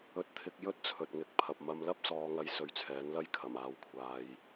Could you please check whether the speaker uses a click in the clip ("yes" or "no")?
no